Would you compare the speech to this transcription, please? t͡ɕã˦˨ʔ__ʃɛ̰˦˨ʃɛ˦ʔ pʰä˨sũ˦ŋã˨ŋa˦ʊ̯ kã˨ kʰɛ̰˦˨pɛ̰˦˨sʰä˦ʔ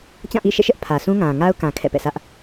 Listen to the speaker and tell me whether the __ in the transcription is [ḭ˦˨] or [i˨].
ḭ˦˨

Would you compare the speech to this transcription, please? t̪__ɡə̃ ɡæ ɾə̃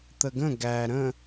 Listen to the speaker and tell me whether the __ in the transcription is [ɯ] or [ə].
ə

